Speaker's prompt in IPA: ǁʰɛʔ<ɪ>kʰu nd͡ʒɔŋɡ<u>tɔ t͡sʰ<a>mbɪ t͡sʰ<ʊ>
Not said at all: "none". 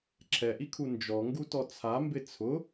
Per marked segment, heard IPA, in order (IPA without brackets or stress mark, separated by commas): i, u, a, ʊ